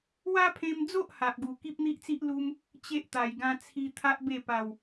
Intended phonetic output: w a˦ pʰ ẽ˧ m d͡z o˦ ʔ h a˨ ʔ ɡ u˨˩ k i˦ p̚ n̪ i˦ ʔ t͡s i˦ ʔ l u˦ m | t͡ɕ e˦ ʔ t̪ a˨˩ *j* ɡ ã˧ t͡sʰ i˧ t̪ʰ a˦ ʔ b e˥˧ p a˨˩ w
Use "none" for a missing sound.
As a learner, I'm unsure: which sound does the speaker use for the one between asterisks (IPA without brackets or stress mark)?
j